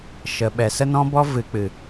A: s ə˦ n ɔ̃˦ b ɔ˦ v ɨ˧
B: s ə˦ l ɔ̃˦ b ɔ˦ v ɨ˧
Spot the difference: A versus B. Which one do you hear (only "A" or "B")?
A